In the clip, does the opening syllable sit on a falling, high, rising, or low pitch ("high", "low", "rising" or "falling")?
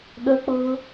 high